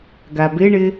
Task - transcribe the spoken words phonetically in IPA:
ɡ a b ɪ ɳ ɪ

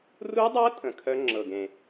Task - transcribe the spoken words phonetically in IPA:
r u˦˥ dˤ ɤ˦˥ tʼ ə̃˨˩ kʰ œ˦˥ ŋ͡ǁ ɤ˨˩ ɡ ẽ˨˩

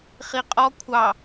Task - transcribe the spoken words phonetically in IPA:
χ i qʼ ɔ kʷʰ ɑ

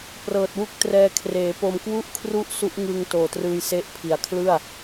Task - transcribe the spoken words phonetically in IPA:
p r ɤː˨˩ t̚ w u˦˥ k̚ t r ɛː˧ kʰ r eː˩˦ p o˧ m k w u˥˩ ʔ kʰ r u˥˩ ʔ s u˦˥ ʔ ŋ ɯ˧ ŋ t oː˨˩ t r ɯː˧ j s e˦˥ ʔ pʰ i˨˩ a̯ kʰ l ɯ˥˩ a̯

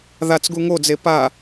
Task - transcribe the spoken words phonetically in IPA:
ð a t͡s ɡ u ŋ o d͡z e p a

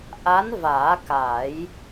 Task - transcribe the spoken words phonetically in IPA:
ʔ a˧˥ n v aː˨˩˦ k a˨˩˦ j

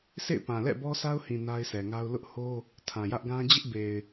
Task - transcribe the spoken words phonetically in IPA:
sʰ ḛ˦˨ ɪ̯ p ã˨ l ɛ̰˦˨ b ɔ˦ sʰ a˦ ʊ̯ h ĩ˨ n a˦ ɪ̯ sʰ ɛ˨ ŋ a˦ ʊ̯ l ʊ˦ ʔ h o˦ | tʰ ã˨ j ä˦ ʔ ɡ ã˦ d͡ʑ ɪ˦ ʔ b e˨ ɪ̯

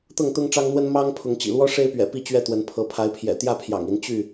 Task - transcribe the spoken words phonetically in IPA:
t̪ ɤ˥˨ ŋ t̪ ʊ˦ ŋ ʈ͡ʂ ɑ˦ ŋ n̪ w ə˦ n m ɑ˦ ŋ pʰ ʊ˨˦ ŋ t͡ɕ ḭ˨˩ l w ɔ˦ ʂ e˦ ɪ̯ p ɥ ɛ̰˨˩ p i˥˨ t͡ɕ ɥ ɛ˥˨ t̪ w ə˨˦ n pʰ ɤ˨˦ pʰ a˨˦ ɪ̯ pʰ j ɛ̰˨˩ t̪ j ä˥˨ pʰ j ɑ̰˨˩ ŋ i˨˦ n t͡ɕ y˥˨

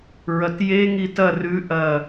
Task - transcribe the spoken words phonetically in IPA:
ɹ ɐ t j e ŋ i t ɐ r ʉ ʔ ɐ

